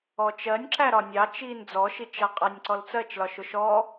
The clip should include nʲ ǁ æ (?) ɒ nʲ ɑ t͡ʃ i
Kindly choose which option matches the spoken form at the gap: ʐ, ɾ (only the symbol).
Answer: ɾ